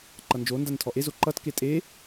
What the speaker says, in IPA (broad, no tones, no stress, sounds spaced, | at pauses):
ǃ ʌ n d͡ʒ o n d a n tʰ ɔ ʔ e z o ǃ ʌ t k e tʼ e